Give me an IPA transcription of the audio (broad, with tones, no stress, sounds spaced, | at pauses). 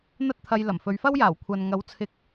n̪ ɐ˥ t̚ t̪ʰ ɐ˧ j l ɐ˨˩ m f ɵ˨˧ ɥ f ɐ˥ w j aː˨˩ w kʷʰ ɐ˨ n ŋ ɐ˨˥ w t͡sʰ ɪ˨ k̚